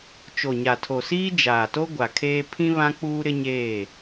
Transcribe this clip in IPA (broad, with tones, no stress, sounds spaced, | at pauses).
t͡ʃ o˨ ɲ a˨ tʰ o˨ s iː˦ d͡ʒ aː˨ t o˦ ɡʷ a˨ kʰ eː˦ pʰ ĩ˦ β ã˦ k͡p uː˦ ɾ ɪ˦ ɲ eː˦˨